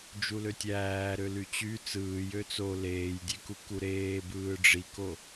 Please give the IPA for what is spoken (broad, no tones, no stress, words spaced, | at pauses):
d͡ʒuløtʲæːɾø lyt͡ɕy t͡sɯːj øt͡so leːjdʲeku kuɾeːbɯː ɖ͡ʐiko